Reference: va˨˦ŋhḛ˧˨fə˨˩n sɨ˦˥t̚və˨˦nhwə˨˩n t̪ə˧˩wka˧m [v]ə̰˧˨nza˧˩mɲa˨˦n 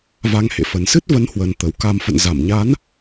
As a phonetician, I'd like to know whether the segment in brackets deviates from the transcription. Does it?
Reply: yes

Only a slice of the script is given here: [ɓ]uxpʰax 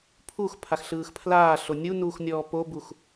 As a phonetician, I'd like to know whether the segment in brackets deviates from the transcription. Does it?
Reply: yes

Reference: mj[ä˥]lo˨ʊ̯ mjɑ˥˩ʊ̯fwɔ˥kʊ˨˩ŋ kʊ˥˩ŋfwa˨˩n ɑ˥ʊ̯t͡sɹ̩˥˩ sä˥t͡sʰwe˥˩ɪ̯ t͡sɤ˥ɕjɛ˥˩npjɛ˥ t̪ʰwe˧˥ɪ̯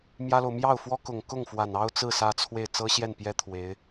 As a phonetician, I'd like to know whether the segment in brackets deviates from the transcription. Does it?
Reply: no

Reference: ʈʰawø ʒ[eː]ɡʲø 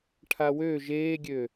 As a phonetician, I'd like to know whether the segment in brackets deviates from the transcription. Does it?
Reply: no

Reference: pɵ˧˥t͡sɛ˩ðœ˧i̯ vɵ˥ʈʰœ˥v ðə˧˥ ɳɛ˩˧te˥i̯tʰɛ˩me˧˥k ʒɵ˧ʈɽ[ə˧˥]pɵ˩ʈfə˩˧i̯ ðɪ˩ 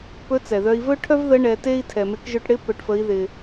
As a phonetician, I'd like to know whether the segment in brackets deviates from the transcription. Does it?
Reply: yes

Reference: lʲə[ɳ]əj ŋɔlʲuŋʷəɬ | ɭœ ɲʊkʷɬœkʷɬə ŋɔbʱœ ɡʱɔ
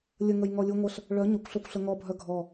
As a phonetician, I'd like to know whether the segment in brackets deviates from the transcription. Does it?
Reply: yes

